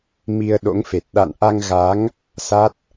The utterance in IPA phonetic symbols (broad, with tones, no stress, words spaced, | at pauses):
mi˧ə̯ɗo̰˧˥ŋfe˨˩t̚ ɗa̰˧˨nʔa˧ŋɣa˨˦ŋ | sa˦˥t̚